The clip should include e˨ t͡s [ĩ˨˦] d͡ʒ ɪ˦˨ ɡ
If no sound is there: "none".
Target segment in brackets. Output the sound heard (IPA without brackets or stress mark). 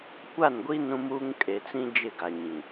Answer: ĩ˦